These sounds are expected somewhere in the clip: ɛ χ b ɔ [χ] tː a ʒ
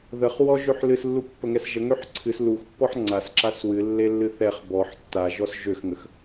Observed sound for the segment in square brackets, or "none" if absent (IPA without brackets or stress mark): ħ